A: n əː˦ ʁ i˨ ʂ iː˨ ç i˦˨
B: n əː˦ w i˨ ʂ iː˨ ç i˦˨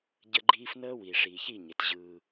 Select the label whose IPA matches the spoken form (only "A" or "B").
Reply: B